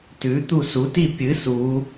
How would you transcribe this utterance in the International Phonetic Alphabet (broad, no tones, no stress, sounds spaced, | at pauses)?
t ʉ t̪ u s u t i pʲ ɨ s u